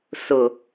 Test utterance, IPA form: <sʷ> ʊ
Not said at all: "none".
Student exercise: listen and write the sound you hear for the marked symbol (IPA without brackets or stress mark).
s